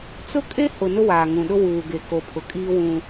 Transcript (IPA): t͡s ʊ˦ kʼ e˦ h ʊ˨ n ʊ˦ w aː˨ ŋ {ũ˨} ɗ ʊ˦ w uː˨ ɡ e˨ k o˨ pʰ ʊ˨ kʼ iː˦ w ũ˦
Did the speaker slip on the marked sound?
no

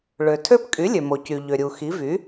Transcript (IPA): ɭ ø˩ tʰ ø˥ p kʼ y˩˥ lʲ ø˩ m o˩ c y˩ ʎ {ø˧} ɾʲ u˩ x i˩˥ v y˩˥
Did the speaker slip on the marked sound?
yes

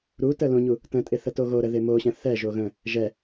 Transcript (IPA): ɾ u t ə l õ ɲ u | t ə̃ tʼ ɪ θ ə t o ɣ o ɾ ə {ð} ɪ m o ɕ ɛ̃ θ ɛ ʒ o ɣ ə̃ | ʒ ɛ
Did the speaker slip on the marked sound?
no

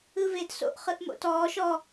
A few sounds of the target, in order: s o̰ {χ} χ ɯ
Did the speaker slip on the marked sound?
yes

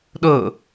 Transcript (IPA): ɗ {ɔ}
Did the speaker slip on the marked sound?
yes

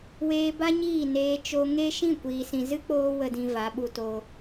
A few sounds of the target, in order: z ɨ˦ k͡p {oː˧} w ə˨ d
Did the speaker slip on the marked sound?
no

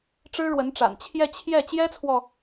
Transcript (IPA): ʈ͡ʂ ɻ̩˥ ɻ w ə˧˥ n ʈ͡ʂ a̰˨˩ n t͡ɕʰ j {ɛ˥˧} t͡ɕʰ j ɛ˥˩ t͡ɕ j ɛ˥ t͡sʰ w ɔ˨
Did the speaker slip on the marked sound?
no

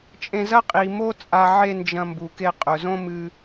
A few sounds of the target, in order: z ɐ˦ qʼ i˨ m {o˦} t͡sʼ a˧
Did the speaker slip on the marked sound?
no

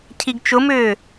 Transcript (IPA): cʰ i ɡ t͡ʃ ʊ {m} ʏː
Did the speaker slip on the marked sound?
no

